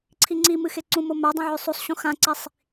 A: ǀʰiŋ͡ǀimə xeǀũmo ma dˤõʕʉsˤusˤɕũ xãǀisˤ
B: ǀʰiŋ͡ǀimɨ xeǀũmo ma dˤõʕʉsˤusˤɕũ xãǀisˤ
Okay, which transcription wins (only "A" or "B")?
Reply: B